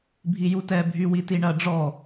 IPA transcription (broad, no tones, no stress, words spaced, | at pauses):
bʱijutɛ bʱywitiɳɐ ɖ͡ʐɔ